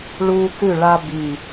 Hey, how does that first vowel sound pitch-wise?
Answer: high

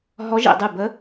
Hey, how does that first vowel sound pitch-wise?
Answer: rising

